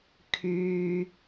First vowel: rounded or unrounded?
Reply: rounded